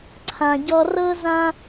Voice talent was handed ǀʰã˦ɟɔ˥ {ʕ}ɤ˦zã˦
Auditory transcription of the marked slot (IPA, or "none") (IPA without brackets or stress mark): r